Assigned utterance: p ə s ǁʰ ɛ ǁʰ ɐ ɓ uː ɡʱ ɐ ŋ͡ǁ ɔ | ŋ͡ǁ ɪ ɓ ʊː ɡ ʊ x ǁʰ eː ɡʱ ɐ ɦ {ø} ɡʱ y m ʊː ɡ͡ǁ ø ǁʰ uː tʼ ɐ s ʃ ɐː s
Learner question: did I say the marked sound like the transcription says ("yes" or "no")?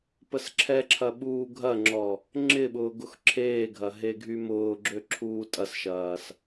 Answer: no